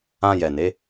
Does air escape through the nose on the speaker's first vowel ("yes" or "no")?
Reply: yes